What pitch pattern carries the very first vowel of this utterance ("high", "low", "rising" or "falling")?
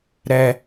high